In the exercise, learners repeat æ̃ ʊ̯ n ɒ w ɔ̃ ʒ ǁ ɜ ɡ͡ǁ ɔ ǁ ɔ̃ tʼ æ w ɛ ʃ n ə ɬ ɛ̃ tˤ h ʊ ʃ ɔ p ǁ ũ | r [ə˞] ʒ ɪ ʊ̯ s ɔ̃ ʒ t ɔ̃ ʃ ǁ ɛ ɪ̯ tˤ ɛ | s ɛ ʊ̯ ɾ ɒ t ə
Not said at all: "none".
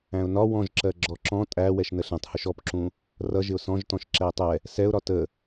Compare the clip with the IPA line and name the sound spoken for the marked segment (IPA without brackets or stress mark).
ʌ